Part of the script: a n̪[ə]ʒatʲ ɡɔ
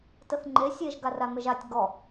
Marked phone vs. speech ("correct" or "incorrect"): correct